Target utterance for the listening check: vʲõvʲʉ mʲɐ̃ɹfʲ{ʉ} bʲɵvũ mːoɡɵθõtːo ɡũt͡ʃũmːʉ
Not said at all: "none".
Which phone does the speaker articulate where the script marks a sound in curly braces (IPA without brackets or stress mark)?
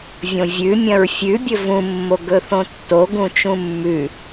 ʉ